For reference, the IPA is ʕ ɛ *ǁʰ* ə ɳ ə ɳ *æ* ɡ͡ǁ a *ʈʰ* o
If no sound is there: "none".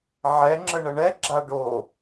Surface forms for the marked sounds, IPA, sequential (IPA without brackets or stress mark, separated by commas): ŋ͡ǁ, ɛ, ɖ